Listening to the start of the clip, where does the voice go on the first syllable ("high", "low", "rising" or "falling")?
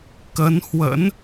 rising